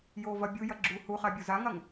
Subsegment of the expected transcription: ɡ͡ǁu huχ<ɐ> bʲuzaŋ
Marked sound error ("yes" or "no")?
yes